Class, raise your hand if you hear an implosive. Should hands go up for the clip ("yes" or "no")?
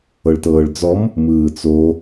no